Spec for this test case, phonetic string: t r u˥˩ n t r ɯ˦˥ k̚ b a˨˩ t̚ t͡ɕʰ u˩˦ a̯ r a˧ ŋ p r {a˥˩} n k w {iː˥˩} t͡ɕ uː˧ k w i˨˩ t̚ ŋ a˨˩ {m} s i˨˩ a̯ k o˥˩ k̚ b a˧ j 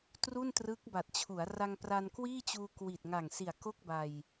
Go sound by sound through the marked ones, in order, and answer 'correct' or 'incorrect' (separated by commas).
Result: incorrect, correct, incorrect